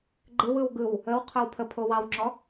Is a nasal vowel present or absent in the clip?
absent